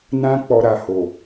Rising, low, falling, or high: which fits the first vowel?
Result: high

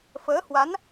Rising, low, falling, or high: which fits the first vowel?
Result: rising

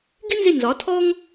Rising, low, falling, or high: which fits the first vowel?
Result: high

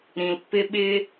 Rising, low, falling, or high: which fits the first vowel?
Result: low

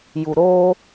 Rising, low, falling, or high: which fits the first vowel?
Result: low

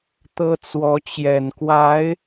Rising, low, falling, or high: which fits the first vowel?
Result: high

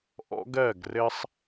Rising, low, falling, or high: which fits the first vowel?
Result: high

